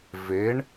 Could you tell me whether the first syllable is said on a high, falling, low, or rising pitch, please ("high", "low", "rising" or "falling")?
rising